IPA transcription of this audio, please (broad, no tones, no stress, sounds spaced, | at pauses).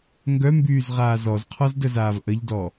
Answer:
ŋ ɡ œ m b yː z ʁ aː z ɔ z qʰ ɔ z d ə z aː v ʔ ə ʎ d ɔ